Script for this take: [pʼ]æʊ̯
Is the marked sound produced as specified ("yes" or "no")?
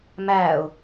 no